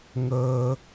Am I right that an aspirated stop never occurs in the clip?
yes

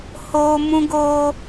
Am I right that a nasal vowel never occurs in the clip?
no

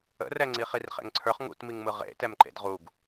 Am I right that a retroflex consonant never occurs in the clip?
yes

